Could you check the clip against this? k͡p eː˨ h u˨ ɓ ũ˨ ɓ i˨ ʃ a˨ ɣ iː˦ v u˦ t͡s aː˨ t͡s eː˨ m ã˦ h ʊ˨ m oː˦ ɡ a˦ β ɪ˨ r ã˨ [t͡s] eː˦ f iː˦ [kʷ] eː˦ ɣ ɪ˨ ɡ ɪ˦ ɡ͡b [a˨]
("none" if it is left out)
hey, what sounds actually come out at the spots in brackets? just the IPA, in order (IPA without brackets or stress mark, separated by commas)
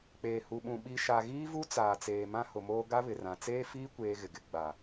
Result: t͡s, kʷ, a˨